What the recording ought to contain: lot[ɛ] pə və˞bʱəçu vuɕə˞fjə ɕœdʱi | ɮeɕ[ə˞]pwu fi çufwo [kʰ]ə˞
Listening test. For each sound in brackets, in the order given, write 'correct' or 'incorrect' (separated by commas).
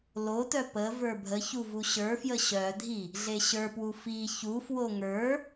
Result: incorrect, correct, incorrect